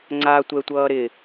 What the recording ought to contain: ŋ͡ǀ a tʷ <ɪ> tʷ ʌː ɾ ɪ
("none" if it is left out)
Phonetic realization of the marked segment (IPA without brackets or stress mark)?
ɛ